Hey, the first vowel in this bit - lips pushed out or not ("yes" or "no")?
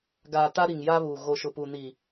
no